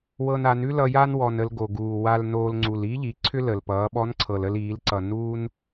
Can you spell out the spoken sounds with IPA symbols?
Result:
wɤ˧na˩˧nʉ˥ lʌ˧ja˥nwɔ˩n ə˧lɡo˩ɡuː˩ wa˧lnoː˧l ŋ͡ǀu˩li˧˥ʎi˩˧ ǀʰʏ˥lə˩lpʌː˩˧ɓɔ˧˥n ǀʰɤ˩lə˧liː˩˧lǀʌ˩ nuː˥n

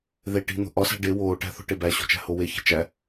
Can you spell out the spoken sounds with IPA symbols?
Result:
ðeʈi̤ n̪o̤ʔɒsæ̤ ɖe woːʈæ̤θo̤ ʈebæɕo̤ t͡ʃæ̤howeçe̤ t͡ʃæ

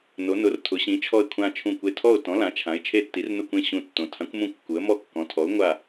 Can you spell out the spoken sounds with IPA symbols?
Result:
no˩˧nʊ˩˧r tʰʊ˩˧ɕĩ˩˧ t͡ʃʰɔ˧˩ɪ̯kʷʰã˧˩t͡ʃʰũ˧˩kʷe˧˩ tʰɔ˧˩ʊ̯tɔ̃˩˧ lã˩˧t͡ʃʰã˩˧ɪ̯ t͡ʃʰe˧˩tːi˩˧rnʊ˧˩kʷẽ˧˩ ɕũ˧˩tːõ˩˧ tʰã˩˧kʷmũ˧˩ kːu˩˧ə̯ mɔ˧˩kːɔ̃˩˧tʰɔ˩˧ʊ̯ ŋʷa˧˩

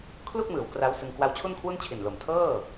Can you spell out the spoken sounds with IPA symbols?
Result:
kʰlu˥˩k̚mɯː˩˦w kra˦˥wsɯ˧ŋ kwa˦˥wt͡ɕʰu˥˩nkʰwu˥˩n t͡ɕʰi˨˩nlo˨˩m tʰɤː˥˩

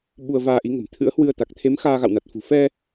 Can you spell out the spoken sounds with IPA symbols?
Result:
ɓu˧ə̯vaː˧ʔi˨˦ ŋə̤˨˩mt̪ʰɨ̰˧˥ə̯hwɨ˧ə̯ t̪a˨˩k̚t̪ʰe˨˦m xaː˧ɣa̰˧˨wna˨˩t̚fṳ˨˩ fɛ˧

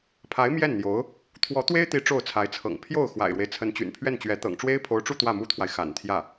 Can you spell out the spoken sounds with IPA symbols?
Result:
pʰa˧˥ɪ̯ mjɛ˥˩nn̪jo˧˥ʊ̯ | t̪ʰwɔ˧˥t̪we˥ɪ̯t̪i˧˥ ʈ͡ʂo˥˩ʊ̯t͡sʰa˧˥ɪ̯t͡sʰɤ̰˨˩ŋ pʰjo˥˩ʊ̯ xwa̰˨˩ɪ̯ɻwe˦ɪ̯ t͡sʰə˧˥nt͡ɕy̰˨˩npʰɥɛ˥˩nt͡ɕɥɛ˧˥ t̪ɤ̰˨˩ŋʈ͡ʂwe˥ɪ̯pʰo˧˥ʊ̯ʈ͡ʂu˥˧ t̪wä˥˩mu˥t̪ʰwa˨ɪ̯ xa̰˨˩nt̪ʰjä˥˩

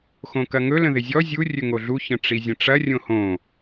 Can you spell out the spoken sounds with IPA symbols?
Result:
xõkɐŋɵ lə̃ðɪzʲɔ zʲu rʲɵŋoɮu çə̃ʈ͡ʂizʲə̃ʈ͡ʂɐ rʲõhõ

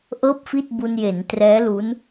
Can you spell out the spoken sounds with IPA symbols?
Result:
ʔɤː˥˩p̚fi˥˩t̚bu˧n je˩˦ntrɛː˦˥lu˦˥n

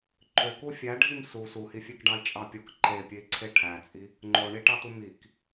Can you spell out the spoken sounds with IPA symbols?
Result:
ǃø kufʲæɖʱim su suhifʲekɖɑi̯ t͡ʃʼɑpʲok ǃepʲei̯ ǀʰeʈʰæt͡sʼi | ŋ͡ǃoɳiʈɑtu mik

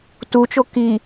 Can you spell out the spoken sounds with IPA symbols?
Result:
tut͡ʃo ki

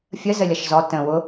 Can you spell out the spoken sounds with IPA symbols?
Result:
fʲə zəlʲʌʃzɔ tə̃ wʊ

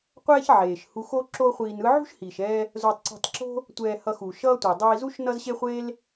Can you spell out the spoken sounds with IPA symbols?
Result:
qʷɛː˥ç ʕeː˩ʃ hu˧xo˥ ǁo˥χʷiː˧nɯ˥ ʕṳ˥ʃhiː˩ʃɛː˧ | zo˧tˤǀṳ˧tˤǁo̤˥ | tʷɛː˧ hʌ˧xuː˩ʃʌː˥tʷeː˩ dˤiː˧zu˥ʃ nʌ˥zɕe˥χʷeː˥l

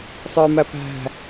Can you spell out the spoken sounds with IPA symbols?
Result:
sˤə˞mæpæ̤

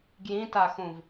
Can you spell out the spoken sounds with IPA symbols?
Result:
ɡjĩtaxũv

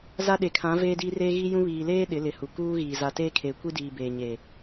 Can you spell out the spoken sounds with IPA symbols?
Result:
za˦ɗe˨kʰã˨˦ veː˦diː˦reː˦ ɣi˦jũ˦ βiː˨leː˦ ɗɪ˨˦lɪ˨˦hu˨ kuː˦ɣiː˨ za˨teː˦kʰeː˨kʷi˦ diː˨beː˨ɲe˨

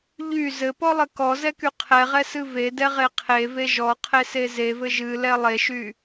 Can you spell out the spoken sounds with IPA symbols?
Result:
ʎy zɘpɔlˠɘ kɔzɛky qʰɛʁɛsɨ vedɛʁe qʰeve ʒɔqʰese zevɘ ʒɨlɛ lˠeʃy

